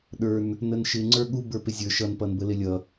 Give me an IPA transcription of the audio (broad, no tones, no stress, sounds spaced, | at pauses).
ɗ ə˞ n | n ə n ʃ ɪ ŋ͡ǀ ə˞ ɠ u b ə˞ p ɪ zʲ ə˞ ʃ ʌ n p ʌ n b ə l ɪ lʲ ʌ